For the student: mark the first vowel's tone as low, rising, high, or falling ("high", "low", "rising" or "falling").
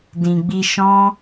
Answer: low